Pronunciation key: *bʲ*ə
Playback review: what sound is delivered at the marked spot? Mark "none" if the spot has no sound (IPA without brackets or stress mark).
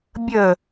bʲ